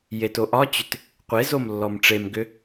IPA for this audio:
j e t o ʔ ɒ t͡ɕ ʏ t | qʷ e z o m lː ɔ m ʈ͡ʂ e m ɡ ʏ

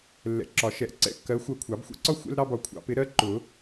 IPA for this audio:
lː ɛ̰˨˩˦ ǁ ɒ˨˩˦ ʃ ɛ˨˩˦ ʔ ǀ ɛ̰˧˥˧ kː ɜ˨˥ xʷ ɜ˧˩ kʷʰ ɑ˨˩˦ b xʷ ɛ̰˥ ǀ ɒ˥ xʷ ɛ̰˥ l ɾ ɑ˥ b ɒ˧˩ kʷʰ ɑ̰˨˩˦ p ɪ˨˥ ɾ ɜ˥ ǃ ʊ˨˩˦

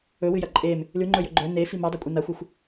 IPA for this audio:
ɵ w ɨ j ɐ ǃʼ e m | l ʉ ŋ͡ǃ ɵ j ɵ ɡ͡ǃ ɵ n e f i m a dˤ a kʷʼ i n a xʷ i xʷ

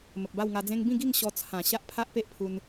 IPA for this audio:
m ə˨ p̚ b a˥˧ w ŋ a˧ d͡z ẽ˦ ŋ b ĩ˥˧ ɡ i˥˧ ŋ ɕ ɔ˧ t͡sʰ ã˨˩ ɕ a˦ ʔ pʰ a˦ ʔ p e˦ ʔ pʰ u˧ n

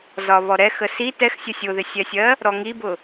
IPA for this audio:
z ɒ β ɔ ɾ ɛ x ə s i t ɛ x sʲ ə sʲ ʊ ð ɪ sʲ ɛ sʲ ɜ | ɾ ɔ ŋ i b ʊ

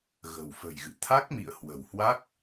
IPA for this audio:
ɣ ə̤˨˩ w f ə̤˨˩ j ɣ ɨ̰˧˨ t̪ʰ a˦˥ k̚ m ḭ˧˨ ə̯ h w ə̤˨˩ w h w a˦˥ k̚

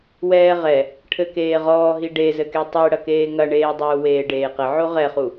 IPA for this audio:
w ɛː ʁ ɛ | ʈʰ ɘ k eː ʁ ɔː ɦ i ɖ e z ɘ k e tˤ ɨ ɽ ɐ k eː ŋ ɐ ɳ eː dˤ uː w eː ɖ eː q ɘ ʕ o ʁ ɛ χ u

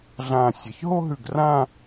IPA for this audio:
ɮ ãː˧˩ sʲ ɐ˩˧ ç ɦ o˥ ɦ ʉ˧˩ ɡ r ã˥˧

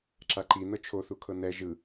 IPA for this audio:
ǁ a ǃ i n ɤ t͡ʃʰ o θ u kʰ ɤ n ɛ ʒ ɯ

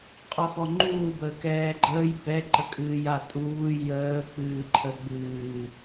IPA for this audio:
qʼ ɔ x ɔ ŋ͡ǃ uː b əː k ɛː ɡ͡ǃ əː j b ɛ ǃ ə kʼ ɨː j a tʼ uː j əː k͡p ɨː ǃʰ ə ɡ͡b ɨː

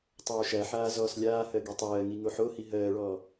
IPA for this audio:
tˤ oː ʃ æ ħ aː z ɔː s lʲ aː h ɜ ɡ i tˤ ɜː ŋ i ŋ o ħ o h i ɦ ɜː ɭ ɔː

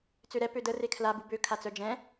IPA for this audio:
t͡s ø ɾ ɛ p ø d ə r e kʰ l a b u b ø kʰ a t͡s œ d͡ʒ ɛ̃

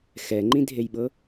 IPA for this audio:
x ɛ ŋ͡ǃ ĩ dʱ e j ɓ ɤ

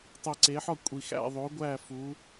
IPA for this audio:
tˤ i˨ ǀ e˨˦ ħ ɒ˥˧ kʷʼ i˨ x æ̰˥˧ ðˤ o˨˦ ɡʷ æ˥˧ f u˨˦

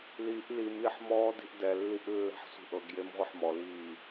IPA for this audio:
l i ʔ l i m i ħ m ɔː d i̤ ʔ d ɛ lː i ʔ lː ɛ̤ ħ sʷ i̤ ʔ ɤ ɡ j e m ʁʷ i ħ m ɔ l iː

